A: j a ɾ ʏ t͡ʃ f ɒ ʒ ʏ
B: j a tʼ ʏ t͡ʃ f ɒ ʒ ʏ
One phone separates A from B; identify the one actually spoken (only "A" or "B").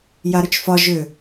A